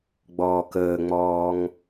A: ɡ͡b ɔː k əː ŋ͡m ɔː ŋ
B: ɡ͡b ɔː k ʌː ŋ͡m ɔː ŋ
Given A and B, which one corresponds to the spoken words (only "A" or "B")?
A